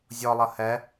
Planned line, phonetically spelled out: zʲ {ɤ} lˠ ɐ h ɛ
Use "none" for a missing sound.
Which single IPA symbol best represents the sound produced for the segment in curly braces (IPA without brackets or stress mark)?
ɔ